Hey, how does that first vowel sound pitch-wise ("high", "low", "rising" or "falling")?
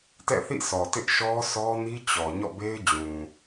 falling